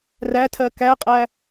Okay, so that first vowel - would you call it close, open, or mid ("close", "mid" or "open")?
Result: open